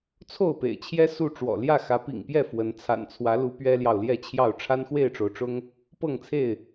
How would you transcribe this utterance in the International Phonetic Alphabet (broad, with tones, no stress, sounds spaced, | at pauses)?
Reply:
t͡sʰ o˥˨ ʊ̯ p ḛ˨˩ ɪ̯ t͡ɕʰ j ɛ˦ s u˥˨ ʈ͡ʂ w ɔ̰˨˩ l j ä˥˨ x ä˨˦ p ḭ˨˩ ŋ p j ɛ˥˨ f w ə˨˦ n t͡sʰ a̰˨˩ n t͡sʰ w ä˨˦ l u˨˦ p ɥ ɛ˦ l j ɑ˨ ʊ̯ l j ɛ˥˨ t͡ɕʰ j ɑ˥˨ ʊ̯ ʈ͡ʂʰ a˦ n x w e˥˨ ɪ̯ ʈ͡ʂ o˩ ʊ̯ ʈ͡ʂ ʊ˦ ŋ | p ɤ˥˨ ŋ t͡sʰ e˥˨ ɪ̯